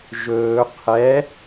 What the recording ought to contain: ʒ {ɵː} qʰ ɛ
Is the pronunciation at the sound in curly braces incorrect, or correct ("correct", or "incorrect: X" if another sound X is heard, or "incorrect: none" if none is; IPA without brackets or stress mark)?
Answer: correct